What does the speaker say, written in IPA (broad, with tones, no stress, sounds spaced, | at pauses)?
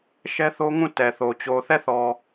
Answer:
ʃ ɛ˦ θ o˦ ŋ ũ˦˨ t ɛ˨ θ o˨ t͡ɕ o˨ θ ɛ˦˨ θ ɔ˨